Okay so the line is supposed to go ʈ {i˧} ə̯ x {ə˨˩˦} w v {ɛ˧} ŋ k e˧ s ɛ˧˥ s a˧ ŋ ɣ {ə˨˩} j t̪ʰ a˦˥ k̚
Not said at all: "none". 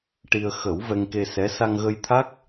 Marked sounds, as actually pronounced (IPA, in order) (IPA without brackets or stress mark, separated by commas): i˧, ə˨˩˦, ɛ˧, ə˧